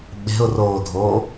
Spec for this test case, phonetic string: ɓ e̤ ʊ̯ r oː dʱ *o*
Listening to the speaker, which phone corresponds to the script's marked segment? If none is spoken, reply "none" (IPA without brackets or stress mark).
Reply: oː